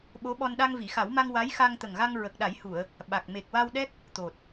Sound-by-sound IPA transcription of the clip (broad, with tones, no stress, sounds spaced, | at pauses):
ɓ o˧˥ ɓ ɔ˧ n ɗ a˧ ŋ v i˨˩˨ x a˨˩˦ w m a˧ ŋ w a˧˥ j x a˧ ŋ t̪ ə˨˩ ŋ ɣ a˧ ŋ ɹ ə˨˩ k̚ ɗ a˨˩˦ j h u˨˩˨ ə̯ | ɓ a˨˩ k̚ m e˨˩ k̚ w a˧ w ɗ ɛ˦˥ k̚ | t̪ o˨˩ t̚